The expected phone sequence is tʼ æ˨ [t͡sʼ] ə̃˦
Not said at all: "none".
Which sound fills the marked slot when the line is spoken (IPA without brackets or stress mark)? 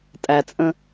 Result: t͡sʼ